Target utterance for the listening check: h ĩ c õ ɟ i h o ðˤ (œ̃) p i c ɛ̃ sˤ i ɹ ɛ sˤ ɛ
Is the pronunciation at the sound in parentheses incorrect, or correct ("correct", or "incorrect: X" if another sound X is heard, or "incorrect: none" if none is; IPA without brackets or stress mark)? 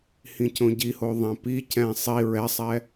incorrect: ɛ̃